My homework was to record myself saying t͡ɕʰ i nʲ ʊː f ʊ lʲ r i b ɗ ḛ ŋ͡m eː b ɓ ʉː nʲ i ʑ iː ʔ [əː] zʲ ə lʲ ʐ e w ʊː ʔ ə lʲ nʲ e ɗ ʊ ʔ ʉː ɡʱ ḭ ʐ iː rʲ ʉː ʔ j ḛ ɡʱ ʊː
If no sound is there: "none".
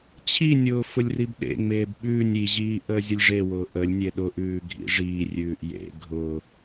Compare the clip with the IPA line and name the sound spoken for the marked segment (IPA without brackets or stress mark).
əː